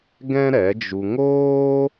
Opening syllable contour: high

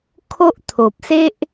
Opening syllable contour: high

